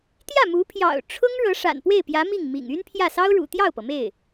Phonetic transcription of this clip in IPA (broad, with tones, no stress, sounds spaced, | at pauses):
t̪ j ä˥˩ m u˧˥ pʰ j ɑ̰˨˩ ʊ̯ ʈ͡ʂʰ ʊ˥ ŋ ɻ ɤ˧˥ ʂ a̰˨˩ n p w e˥˩ ɪ̯ p j ä˧˥ m i˥˩ ŋ m ḭ˨˩ ŋ y˥ n pʰ j ä˥˩ s ɑ˥ ʊ̯ ɻ ṵ˨˩ t̪ j ɑ˥˩ ʊ̯ p ɤ˩ m e˥˩ ɪ̯